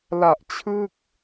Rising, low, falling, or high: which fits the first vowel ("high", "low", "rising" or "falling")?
low